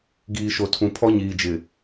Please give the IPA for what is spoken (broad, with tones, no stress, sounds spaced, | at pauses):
ɡ iː˨ ʃ o˨ tʰ ũ˨ pʰ ɔ˦ ɲ iː˨ d͡ʒ ɪ˨